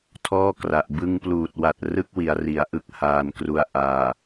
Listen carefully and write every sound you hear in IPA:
tʰ ɔː˥˩ k r a˨˩ ʔ b ɯ˧ ŋ p l uː˨˩ t̚ w a˨˩ t̚ r ɯ˥˩ k̚ w i˩˦ a̯ r i˩˦ a̯ ʔ ɯ˥˩ k̚ h aː˧ n k r u˧ a̯ ʔ aː˨˩

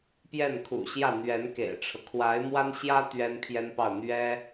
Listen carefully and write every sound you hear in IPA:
p j ɛ˥˩ n kʰ ṵ˨˩ ɕ j ä˥˩ n̪ ɥ ɛ˧˥ n k ḛ˨˩ ɪ̯ ʈ͡ʂʰ ɤ˦ kʰ w a˧˥ ɪ̯ m w a˥ n ɕ j ä˥ t̪ ɥ ɛ˥ n pʰ j ɛ˥ n p ɑ˥˩ ʊ̯ n̪ ɥ ɛ˥

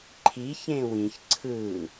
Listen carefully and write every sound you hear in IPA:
ǃʰ i ç ẽ w ĩ ç ǀʰ ɯ

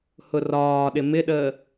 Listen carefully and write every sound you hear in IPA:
h ʊ r ɒː ɗ ɪ m ɪ ɗ əː

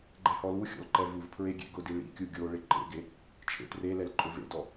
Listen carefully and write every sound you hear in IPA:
ɡ͡ǃ ɛ h ɔ l u xʲ ɔ̰ l ǃ ɛ v u v pʰ ɹ e ɡʲ ḛ ɡ ʊ d i ɭ ḭ kʲ u ɡʲ o ɭ ɪ ǃ ḛ ɡ e | t͡ʃʰ ḛ t r e l ɛ l ǃʼ ʊ v ḛ d ɔ

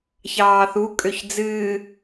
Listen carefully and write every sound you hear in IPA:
ç ɑː θ u kʼ ø ç d͡z ɨː

